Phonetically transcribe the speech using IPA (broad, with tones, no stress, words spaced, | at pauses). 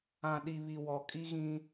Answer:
ã˨ ɗi˨βi˨wɔ˨ kʼi˦ɣĩ˦